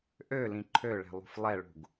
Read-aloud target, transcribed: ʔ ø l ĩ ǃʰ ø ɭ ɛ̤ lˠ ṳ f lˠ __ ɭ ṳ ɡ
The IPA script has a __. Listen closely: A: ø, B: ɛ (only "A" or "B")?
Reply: B